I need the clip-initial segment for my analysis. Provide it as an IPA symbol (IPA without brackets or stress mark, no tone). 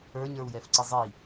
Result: ə˞